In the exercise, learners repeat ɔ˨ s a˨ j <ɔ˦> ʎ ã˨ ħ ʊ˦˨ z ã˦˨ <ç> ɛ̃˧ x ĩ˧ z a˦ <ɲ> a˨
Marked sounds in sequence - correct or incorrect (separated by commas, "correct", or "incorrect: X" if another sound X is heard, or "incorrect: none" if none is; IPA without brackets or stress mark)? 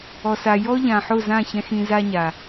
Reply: correct, correct, correct